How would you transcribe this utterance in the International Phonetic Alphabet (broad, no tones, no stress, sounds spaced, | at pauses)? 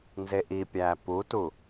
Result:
n z e ʔ i pʲ æː p u t u